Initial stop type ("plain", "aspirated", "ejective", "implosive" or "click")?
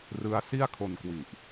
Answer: aspirated